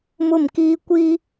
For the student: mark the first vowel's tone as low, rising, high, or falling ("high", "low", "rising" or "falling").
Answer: falling